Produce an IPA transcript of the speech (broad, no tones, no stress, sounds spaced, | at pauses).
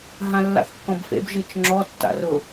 ɦ ã lː a̰ θ kː ɔ̃ b f ḛ b ʒ ɨ t͡ʃ ŋ͡ǁ ɔ tː a̰ r ʊ